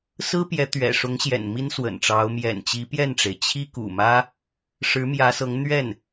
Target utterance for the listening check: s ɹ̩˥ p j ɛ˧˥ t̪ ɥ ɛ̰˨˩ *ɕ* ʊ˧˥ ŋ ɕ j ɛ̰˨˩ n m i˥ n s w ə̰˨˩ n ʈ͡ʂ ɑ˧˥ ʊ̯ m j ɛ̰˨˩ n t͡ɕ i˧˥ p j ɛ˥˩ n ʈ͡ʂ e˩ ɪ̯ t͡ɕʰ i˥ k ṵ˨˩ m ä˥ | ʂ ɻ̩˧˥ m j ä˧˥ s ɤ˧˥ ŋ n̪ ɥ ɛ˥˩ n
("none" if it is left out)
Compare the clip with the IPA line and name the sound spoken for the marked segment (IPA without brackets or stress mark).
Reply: ʂ